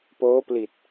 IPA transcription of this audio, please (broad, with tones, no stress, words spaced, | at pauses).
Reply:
poː˦˥pli˨˩t̚